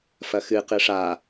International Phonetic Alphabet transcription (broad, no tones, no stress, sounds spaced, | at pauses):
f ɐ x ɨ q ɨ ʂ a